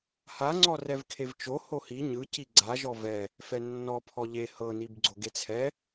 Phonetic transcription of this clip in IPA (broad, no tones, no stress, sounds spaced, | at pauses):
h a ŋ͡ǀ ɔ r ɛ v kʰ e v t͡ʃ o h o h i ɲ ɯ c i ɡ͡ǀ a ʒ ɔ v ɛ | f ɛ nː ɔ pʰ ɔ ʎ e h ɤ n i b ɡ͡ǀ o ɡ e t͡sʰ ɛ